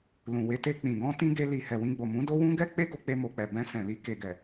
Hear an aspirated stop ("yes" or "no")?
no